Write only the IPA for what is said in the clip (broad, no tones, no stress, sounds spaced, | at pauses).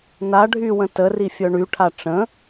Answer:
n a ɖʱ y w ə̃ t ə r i fʲ œ ɳ y ʈʰ a ʈ͡ʂ ə̃